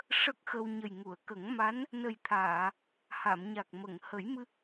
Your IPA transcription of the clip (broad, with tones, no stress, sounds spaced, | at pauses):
ʂ ə˦˥ k̚ x ə˧ w ɲ ə˨˩ j ŋ u˨˩˨ ə̯ k ə˨˩˦ ŋ m a˧˥ n | n ə˨˩ j t̪ʰ aː˨˩˨ | h a˨˩˨ m ɲ a˨˩ k̚ m ə˨˩˨ ŋ h ə˨˩˦ j m ɨ˧